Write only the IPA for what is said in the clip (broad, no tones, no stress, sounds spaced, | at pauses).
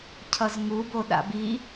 cʰ ʌ z ŋ u b o ɗ a̰ b i